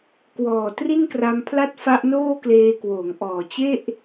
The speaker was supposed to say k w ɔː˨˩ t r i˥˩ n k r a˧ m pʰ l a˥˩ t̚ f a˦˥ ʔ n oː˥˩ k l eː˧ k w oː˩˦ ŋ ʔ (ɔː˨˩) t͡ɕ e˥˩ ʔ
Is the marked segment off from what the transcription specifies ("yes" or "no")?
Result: no